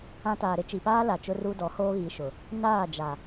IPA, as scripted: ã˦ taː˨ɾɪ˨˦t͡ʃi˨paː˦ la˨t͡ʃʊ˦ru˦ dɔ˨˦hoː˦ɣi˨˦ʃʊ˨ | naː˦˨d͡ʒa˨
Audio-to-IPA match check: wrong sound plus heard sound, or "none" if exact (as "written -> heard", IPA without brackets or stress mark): none